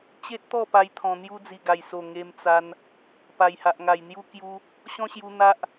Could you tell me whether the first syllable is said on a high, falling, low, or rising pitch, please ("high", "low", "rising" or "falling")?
high